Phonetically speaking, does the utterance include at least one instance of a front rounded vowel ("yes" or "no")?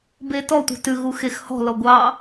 no